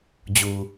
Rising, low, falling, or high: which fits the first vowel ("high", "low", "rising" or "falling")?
low